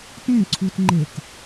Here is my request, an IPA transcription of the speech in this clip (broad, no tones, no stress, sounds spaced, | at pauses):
t ẽ ǀʰ u t ŋ͡ǃ e t